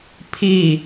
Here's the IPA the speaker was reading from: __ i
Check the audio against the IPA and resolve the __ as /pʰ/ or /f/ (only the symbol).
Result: pʰ